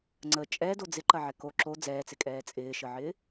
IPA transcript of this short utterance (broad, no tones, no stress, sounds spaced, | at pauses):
ŋ͡ǀ ə t͡ʃʼ ɛ d o d͡z ɪ ǃ ɐ ʕ ɛ k o ǁ o d͡z ɛː t͡s ɪ kʼ ɛː t͡sʼ ɪː ʃ ə ʕ ɪː